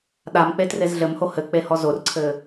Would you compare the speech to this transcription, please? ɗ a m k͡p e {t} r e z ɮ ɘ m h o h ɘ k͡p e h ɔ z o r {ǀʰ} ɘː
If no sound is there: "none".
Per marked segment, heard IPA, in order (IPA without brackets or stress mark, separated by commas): t, ǀʰ